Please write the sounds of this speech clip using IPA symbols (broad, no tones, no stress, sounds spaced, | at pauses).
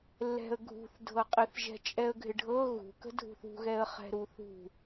lː ɛ̤ ə̯ ɡʱ ṳ θ dʱ ɤ qʼ ɪ θ ʒ ɛ̤ t͡ʃʼ ɛ ə̯ ɡʱ ɪ ɖʱ ɤ ɣ ṳ k ə̤ dʱ ṳ θ ṳ ɣ ɛ ə̯ χ ɛ̤ ɾ u θ ṳ